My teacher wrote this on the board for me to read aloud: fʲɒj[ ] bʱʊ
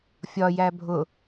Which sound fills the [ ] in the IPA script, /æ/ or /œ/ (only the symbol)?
æ